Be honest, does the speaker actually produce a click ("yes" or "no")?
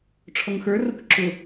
yes